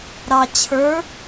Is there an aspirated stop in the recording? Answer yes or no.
yes